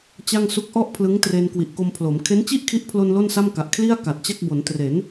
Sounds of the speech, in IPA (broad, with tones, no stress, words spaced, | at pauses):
t͡ɕa˥˩ŋ su˦˥k̚ʔɔ˥˩ʔ pʰlɯ˦˥ŋtre˧n kwi˨˩ʔko˧mpʰlo˩˦m kʰe˦˥nt͡ɕi˥˩ʔkʰi˦˥ʔpʰlo˧n lo˥˩nsa˥˩mka˨˩ʔ kʰli˥˩a̯ ka˨˩t̚t͡ɕa˥˩k̚ bo˩˦ntre˩˦n